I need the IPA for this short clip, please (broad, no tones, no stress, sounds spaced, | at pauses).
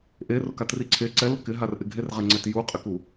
ʔ e r ʊ k a t r i ǀʰ e ǀ ɛ l ʊ k ɪ ɦ a r ʔ ɪ ɡʱ e r ʁ ɛ ŋ͡ǀ ɛ t j u qʼ ɪ k u